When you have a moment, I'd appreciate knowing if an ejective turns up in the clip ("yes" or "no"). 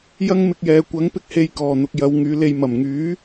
no